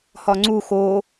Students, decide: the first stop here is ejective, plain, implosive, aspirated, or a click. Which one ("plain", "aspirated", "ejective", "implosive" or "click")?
click